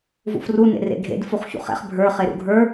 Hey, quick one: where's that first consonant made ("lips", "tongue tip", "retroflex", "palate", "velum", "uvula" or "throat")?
lips